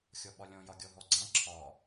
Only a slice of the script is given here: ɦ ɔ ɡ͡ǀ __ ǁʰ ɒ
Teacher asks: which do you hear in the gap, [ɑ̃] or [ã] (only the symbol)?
ã